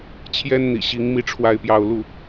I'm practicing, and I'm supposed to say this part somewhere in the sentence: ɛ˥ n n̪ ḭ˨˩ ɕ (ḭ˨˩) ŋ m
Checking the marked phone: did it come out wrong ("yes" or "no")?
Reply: yes